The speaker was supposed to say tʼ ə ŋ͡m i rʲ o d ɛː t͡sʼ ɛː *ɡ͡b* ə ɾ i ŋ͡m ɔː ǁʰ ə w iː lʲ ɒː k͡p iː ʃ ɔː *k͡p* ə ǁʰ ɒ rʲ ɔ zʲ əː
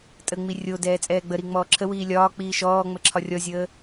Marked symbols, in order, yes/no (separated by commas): yes, no